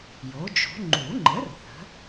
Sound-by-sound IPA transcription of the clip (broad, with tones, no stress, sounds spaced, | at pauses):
j o˩˥ d͡ʒ o̤˩˥ ŋ͡ǃ u˨˩˦ ŋ͡ǃ ə˩˥ r θ ə̤˩˥